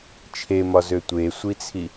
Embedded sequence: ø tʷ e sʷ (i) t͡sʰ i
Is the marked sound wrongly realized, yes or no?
no